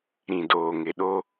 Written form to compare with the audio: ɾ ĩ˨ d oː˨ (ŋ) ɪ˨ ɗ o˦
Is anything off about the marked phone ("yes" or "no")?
no